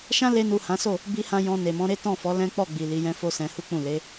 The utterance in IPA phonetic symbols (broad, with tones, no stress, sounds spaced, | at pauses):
ʃ ã˦ l e˧ n u˨ h ã˨˦ s o˦˨ | b i˧ h ã˧ j ɔ̃˧ n e˨ m ɔ̃˨˦ ɾ e˦ t ɔ̃˦˨ f ɔ˨˦ l ɛ̃˦ k͡p ɔ˦˨ ɡ͡b i˨ l i˨˦ j ɛ̃˦ f o˦ s ɛ̃˧ h u˦ k͡p ũ˦˨ l e˨˦